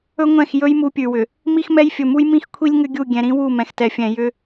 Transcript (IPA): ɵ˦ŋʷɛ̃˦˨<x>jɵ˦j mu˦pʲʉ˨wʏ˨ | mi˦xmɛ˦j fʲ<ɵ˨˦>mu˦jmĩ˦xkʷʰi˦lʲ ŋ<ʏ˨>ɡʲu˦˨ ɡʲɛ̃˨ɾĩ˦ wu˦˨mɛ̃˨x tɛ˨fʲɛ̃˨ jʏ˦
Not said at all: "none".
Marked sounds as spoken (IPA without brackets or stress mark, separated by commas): x, ɵ˨, ʏ˦